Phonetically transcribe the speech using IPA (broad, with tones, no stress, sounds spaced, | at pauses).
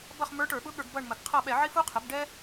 b ʌ˦˨ χ m ə˞˧˥ ʈ ə˞˧˩˧ ɓ ʊ˧˥ ɠ ə˞˧˩˧ ɡ b ʌ˦˨ ɳ m ə˩ ɡ qʰ ʌ˦˨ ɓ ɛ˧˩˧ ʕ i˥ f u˥ qʰ ə˩˥ b ɖ ɛ˥